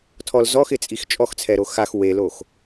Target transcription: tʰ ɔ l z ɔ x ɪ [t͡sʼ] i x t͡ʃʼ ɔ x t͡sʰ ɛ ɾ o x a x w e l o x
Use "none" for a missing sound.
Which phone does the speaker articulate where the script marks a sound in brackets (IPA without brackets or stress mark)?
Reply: t͡sʼ